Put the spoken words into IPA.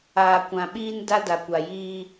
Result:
aː˨ kʷ ã˨ ɓ iː˦ n d a˦ d a˨ kʷ a˨ j iː˦

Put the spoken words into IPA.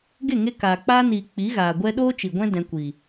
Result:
ɡ e˦˨ ŋ e˧ k aː˨ k͡p aː˦ n iː˨ k͡p i˨˦ ɣ aː˨ ɡʷ ɛ˧ ɗ oː˦ t͡ʃ i˨ ɡʷ ɛ̃˦ d ɛ̃˧ kʷ i˨

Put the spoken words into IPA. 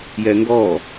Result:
j ɛ ŋ ɡ ɔ

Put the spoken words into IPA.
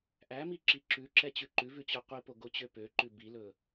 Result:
ʔ æ m i ǁ i ǁ ʉ ǁ ɛ t͡ɕ ʉ ǃ ʉ v ʉ t͡ɕ ɵ qʷ i p o ɡ o t͡ɕ ø p ø ǃ ʉ b i l ɵ

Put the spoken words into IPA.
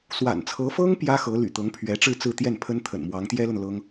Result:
s w a̰˨˩ n t͡sʰ ɤ˧˥ f ɤ˥ ŋ p j ä˥ x ɤ˧˥ l y̰˨˩ t̪ ɤ˧˥ ŋ pʰ ɥ ɛ˧˥ ʈ͡ʂ ɻ̩˥˧ t͡s ɹ̩˥˧ t̪ j ɛ˥˩ n pʰ ə˥ n t̪ʰ ə̰˨˩ n m w ɑ˧˥ ŋ t̪ j ɛ˥ l ə˨ n l ɤ˥ ŋ

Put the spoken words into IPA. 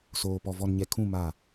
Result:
s oː˨ p ɔ˨ v ɔ˨ n ɲ ɛ˨ kʰ ũ˦˨ m a˦˨

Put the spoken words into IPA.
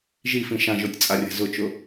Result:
ʒ i f ĩ ʃ ã ʒ o tʲ t͡sʼ a rʲ ɛ̤ z ʊ t͡ʃ ʊ

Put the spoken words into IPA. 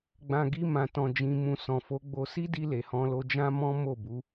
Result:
ɡ͡b ã˨ ɡ i˧ m ã˨ t ɔ̃˨ d͡ʒ ĩ˨ m ũ˨ s ɔ̃˨ f o˨˦ ɡ͡b o˧ s i˦ d i˧ l e˨ h ɔ̃˧ l o˧ d͡ʒ ã˦ m ɔ̃˦ m o˦˨ b u˨˦

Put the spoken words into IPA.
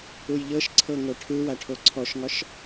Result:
u j ʎ ɤ ʃ ǀʰ ɤ ŋ o ʈʰ ɯ w a ʈʰ o ǀʰ ɔ ʃ ŋ ɒ ʃ

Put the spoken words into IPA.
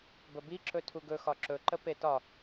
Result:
b ə b i ǁ ɵ tʰ u ɡ ɵ x ɒ ǁ ɵ ǃ ə p e t ɒ

